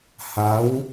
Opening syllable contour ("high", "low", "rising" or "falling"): rising